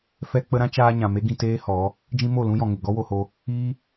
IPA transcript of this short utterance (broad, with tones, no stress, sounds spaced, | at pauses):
f ɛ˦ k͡p ə˦ ɾ ã˦ t͡ʃ aː˧ ɲ ã˨ m e˦ ɡ ĩ˧ t eː˦ h ɔ˨˦ | d͡ʒ ĩ˦ m o˦˨ l ũ˦ j ɔ̃˨ ŋ e˨ ɡ ɔ˦ w o˧ h o˧ | iː˦